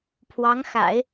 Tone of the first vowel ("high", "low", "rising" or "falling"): rising